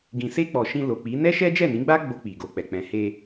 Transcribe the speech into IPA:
ɡ ĩ˨ s e˧ k͡p ɔ˨ ʃ ĩ˧ l o˨ k͡p i˨˦ n ɛ˦ ʃ ɛ˦ d͡ʒ ɛ˦˨ n ĩ˨˦ ɡ͡b a˦ ɡ͡b o˧ k͡p i˨ ɡ o˨ k͡p ɛ˨ k͡p ɛ̃˨ h e˧

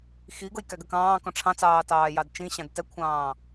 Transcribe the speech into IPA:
x i ɡ ʊ j k æ ɡ ɜ k ɑ̃ː k ɔ̃ ʈ͡ʂʰ ɑ̃ t͡s ɑː t ɑː j ɑ d t͡ʃ ĩ ɕ ɑ̃ d t ɛ kʷʰ ɑ̃ː

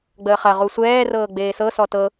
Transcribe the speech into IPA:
ɡ͡b əː χ ɐ ʁ u sʷ ɛː r ɤː ɡ͡b eː s ɤ s ɔ t ɤ

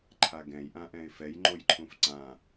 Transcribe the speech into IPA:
ǃʰ a ɡ ɛ̃ j ʔ ã ʔ ɛ̃ ɪ̯ f ɛ j ŋ͡ǃ o j ǃʰ ũ f ǀ ã

